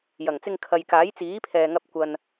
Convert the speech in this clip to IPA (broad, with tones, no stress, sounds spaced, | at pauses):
j ɐ˨˩ ŋ t͡s ɪ˧ ŋ kʰ ɐ˨ j k aː˨˥ j t͡s iː˨˥ pʰ ɛː˨ ŋ ɐ˧ p̚ kʷ ɐ˧ n